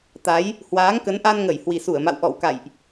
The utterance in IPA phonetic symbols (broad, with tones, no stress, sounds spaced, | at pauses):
t̪ a˨˦ j | h w aː˨˦ ŋ k ə˨˦ n ʔ a˧ n ŋ ə˧˩ j h w i˨˩ s u˧˩ ə̯ m a̰˧˨ w ʔ ɔ̰˧˨ w k a̰˧˨ j ʔ